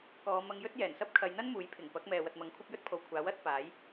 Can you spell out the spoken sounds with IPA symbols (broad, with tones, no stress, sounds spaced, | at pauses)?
k ɔː˨˧ m ɐ˧ ŋ j ɵ˥ t̚ j ɛː˨˩ n s ɐ˥ p̚ kʰ ɐ˨˧ j n̪ ɐ˥ n m uː˨˥ j pʰ ɪ˨˩ ŋ p ɐ˨˥ k̚ m ɛː˨ w ɐ˨ t̚ m ɐ˨˥ ŋ kʷʰ ɐ˥ p̚ j ɵ˥ t̚ pʰ o˨ w kʷʰ aː˨˥ w ɐ˨˥ t̚ p aː˨˥ j